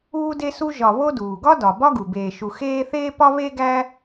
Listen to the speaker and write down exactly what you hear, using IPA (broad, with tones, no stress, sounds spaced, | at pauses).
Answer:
uː˦ d e˦ s u˦ ʒ ɒ˨ β o˦ d uː˩ ɡ ɒ˥ d ɒ˩ b ɒ˥ ɡ u˩ b eː˨ ʃ u˨ x eː˦ θ eː˥ p ɒ˥ β e˥ ɡ æ˦